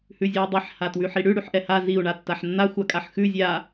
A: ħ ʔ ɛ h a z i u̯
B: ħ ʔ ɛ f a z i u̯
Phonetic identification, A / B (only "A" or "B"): A